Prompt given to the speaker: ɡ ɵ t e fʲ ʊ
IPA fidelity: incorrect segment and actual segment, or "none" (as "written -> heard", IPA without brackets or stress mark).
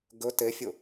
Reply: none